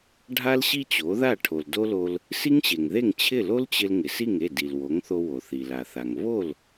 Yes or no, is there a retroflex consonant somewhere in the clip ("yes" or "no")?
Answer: yes